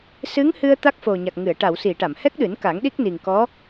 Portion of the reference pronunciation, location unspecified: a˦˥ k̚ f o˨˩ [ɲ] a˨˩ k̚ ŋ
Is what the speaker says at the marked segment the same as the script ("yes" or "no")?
yes